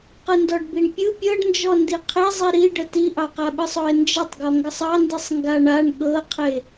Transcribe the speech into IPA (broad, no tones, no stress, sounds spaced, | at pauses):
q ɯ n d ɔ ɖ b i ɳ pʲ ɯ pʲ ɤ ɖ n d͡ʒ ɔ n d i qʰ e zˤ i ɾ i ɖ ə t i ʔ ɑ q a ɓ ɯ sˤ ɔ e̯ n d͡ʒ ə tˤ ɡ ɔ ŋ ɡ ə sˤ ɑ n d i sˤ ŋ ɡ a ɳ a ɳ ɠ ɤ qʰ e